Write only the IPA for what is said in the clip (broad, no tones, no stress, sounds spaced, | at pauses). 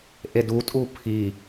ʔ e d u tʼ u pʰ i